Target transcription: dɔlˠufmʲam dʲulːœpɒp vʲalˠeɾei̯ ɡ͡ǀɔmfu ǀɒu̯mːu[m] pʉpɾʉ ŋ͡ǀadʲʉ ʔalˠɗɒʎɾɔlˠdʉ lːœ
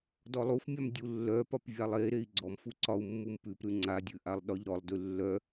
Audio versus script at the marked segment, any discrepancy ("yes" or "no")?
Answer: no